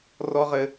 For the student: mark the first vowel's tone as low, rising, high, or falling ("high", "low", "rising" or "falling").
high